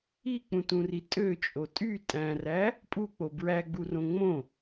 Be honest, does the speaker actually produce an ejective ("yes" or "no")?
yes